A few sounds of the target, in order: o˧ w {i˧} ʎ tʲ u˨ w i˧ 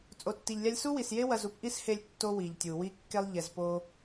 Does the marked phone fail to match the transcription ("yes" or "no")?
yes